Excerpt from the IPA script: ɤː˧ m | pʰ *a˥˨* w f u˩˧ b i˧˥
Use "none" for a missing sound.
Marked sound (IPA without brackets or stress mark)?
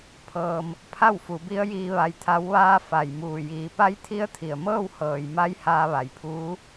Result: a˥˨